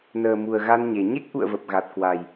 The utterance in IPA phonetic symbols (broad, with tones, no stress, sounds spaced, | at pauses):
n əː˨˩ m u˨˩ ə̯ ɣ a˧ n ɲ e˨˩ ɲ e˦˥ k̚ ʔ ṵ˧˨ ə̯ v ə˨˩ p̚ ɣ a˨˩ t̚ k w a˨˩ j